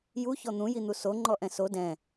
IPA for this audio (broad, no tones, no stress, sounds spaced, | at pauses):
j u ç ɔ n̪ ũ j i n̪ u s o ŋ͡ǃ ɔ ʔ ɛ̃ s o d ɛ̃